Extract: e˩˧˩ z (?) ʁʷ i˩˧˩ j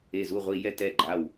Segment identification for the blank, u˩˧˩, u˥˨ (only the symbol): u˥˨